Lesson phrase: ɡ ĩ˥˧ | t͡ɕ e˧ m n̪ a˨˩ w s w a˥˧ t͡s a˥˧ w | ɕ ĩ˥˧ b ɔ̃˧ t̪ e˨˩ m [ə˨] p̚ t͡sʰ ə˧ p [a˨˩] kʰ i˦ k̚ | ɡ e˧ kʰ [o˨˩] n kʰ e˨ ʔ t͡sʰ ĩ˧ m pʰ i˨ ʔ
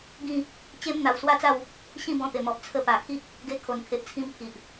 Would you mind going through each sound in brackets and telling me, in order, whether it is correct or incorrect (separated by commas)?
incorrect, correct, correct